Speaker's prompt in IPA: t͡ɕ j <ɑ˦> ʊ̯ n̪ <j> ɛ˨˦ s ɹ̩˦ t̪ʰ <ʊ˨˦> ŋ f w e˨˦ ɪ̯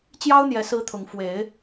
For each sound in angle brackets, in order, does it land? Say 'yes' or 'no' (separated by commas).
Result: yes, yes, yes